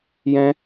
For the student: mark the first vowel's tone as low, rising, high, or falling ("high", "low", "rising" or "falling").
high